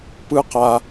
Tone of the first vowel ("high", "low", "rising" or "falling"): low